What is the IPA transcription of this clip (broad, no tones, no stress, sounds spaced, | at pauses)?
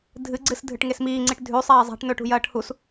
dʱ ɨ ɡ͡ǀ ɨ s dʱ ɨ ʈ ŋ e s m iː ŋ͡ǀ i ʈ dʱ ʉ sˤ eː zˤ a̤ ʈ n ɵ ʈ ṳ j ɐː ʈ h u s